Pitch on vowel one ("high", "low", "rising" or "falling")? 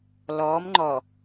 rising